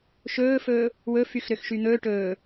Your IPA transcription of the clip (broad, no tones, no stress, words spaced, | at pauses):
ʃɵːfɵː | wɵ fyxɾøxʃyn̪ɵː ʈɵː